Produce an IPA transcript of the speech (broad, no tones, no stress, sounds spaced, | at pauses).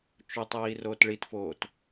t͡ʃ ʊ tˤ iː r oː t ɭ i t f oː t